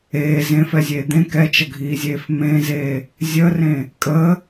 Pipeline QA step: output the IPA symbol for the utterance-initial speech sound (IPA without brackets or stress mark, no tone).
eː